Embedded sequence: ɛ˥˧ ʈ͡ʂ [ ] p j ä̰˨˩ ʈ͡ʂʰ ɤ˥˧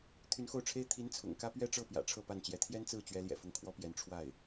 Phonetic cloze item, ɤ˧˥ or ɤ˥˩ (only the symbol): ɤ˥˩